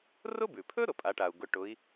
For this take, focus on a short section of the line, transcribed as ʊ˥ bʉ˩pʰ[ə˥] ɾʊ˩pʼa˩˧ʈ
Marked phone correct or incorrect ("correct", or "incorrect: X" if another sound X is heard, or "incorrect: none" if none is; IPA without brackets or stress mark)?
incorrect: ɵ˥